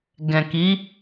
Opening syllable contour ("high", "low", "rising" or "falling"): low